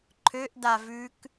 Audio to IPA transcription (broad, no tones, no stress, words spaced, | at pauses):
ǃʰøʔ davʉk